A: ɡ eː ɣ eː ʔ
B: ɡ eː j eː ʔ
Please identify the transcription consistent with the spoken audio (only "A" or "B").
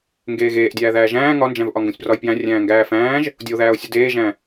A